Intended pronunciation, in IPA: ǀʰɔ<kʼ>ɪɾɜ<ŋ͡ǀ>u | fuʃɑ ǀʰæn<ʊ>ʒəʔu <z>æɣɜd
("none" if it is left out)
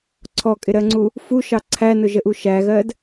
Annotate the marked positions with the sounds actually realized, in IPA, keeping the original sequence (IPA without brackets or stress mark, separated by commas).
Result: kʼ, ŋ͡ǀ, ʊ, ʃ